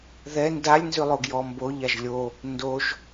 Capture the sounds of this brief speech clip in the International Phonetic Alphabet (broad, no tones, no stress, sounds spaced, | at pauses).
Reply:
ð ɛ n d a lʲ n z ʉ lˠ o ɡ j ɔ m b o ʎ a ʒ lʲ o | n d o ʒ